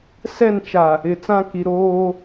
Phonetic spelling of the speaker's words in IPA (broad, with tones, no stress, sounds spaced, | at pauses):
s ɛ˦˨ n t͡ʃ a˨ | ɪ˨ t͡s ã˦ k i˨ ɾ oː˦